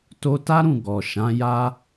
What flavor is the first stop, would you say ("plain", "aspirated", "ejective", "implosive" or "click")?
plain